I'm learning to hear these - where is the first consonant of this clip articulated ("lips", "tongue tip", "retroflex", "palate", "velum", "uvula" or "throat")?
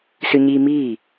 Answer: tongue tip